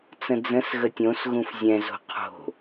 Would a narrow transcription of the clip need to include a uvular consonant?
yes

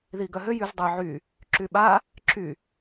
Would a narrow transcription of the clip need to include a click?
yes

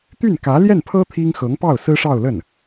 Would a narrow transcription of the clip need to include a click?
no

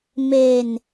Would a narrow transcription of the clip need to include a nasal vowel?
no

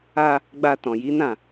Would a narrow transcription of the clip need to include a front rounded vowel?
no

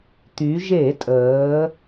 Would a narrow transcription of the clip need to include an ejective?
yes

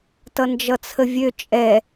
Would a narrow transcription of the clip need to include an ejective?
yes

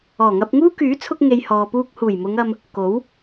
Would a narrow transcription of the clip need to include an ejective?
no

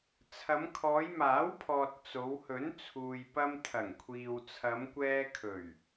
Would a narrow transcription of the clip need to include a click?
no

